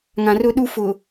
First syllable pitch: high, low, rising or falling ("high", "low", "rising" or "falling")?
low